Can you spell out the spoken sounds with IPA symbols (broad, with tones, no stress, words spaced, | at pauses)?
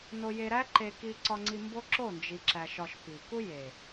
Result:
no˧je˧ɾæ˦ ǃe˧ ki˧ǀɒ˧ŋ͡ǀi˧ mbo˦ǁo˦˨nd͡ʒi˨ǁæ˨ ʃɒ˨ʃ pi˨ku˦ je˨